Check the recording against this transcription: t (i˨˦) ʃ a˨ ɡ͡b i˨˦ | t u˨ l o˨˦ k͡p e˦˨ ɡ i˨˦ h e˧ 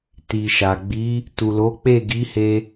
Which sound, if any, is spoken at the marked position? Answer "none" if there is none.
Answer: i˨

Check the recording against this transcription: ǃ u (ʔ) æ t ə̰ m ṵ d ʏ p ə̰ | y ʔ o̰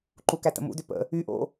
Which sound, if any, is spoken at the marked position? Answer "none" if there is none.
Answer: k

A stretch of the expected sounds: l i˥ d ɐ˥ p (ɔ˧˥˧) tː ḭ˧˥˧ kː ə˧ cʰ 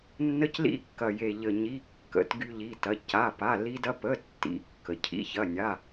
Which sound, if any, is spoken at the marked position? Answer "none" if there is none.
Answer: ə˧˥˧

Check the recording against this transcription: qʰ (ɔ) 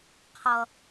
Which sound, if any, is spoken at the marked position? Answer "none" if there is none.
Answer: ʌ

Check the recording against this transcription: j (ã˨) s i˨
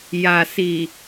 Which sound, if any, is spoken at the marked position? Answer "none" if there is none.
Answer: a˨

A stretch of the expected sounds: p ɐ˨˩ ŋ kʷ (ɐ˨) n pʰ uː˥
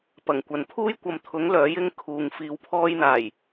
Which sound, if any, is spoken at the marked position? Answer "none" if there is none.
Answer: ɐ˨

